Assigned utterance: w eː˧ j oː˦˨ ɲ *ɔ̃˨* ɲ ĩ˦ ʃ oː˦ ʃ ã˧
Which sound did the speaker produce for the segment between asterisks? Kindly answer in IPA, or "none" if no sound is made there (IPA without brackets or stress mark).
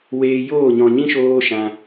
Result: ɔ̃˨